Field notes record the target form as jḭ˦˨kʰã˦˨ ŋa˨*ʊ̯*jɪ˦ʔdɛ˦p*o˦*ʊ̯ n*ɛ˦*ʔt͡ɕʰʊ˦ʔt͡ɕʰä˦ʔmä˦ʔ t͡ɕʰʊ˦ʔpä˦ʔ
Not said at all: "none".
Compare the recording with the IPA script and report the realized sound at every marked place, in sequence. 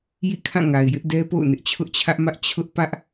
ɪ̯, o̰˦˨, ɪ˦

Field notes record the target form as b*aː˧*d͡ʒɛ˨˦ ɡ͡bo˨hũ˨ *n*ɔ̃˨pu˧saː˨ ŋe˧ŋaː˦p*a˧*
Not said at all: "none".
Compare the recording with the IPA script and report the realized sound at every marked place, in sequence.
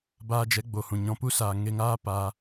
aː˧, ɲ, aː˧

